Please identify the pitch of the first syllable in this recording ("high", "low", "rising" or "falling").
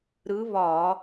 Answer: rising